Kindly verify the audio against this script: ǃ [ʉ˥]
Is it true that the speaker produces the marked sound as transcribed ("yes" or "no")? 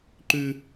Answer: yes